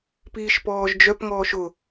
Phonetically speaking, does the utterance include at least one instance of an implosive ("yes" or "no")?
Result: no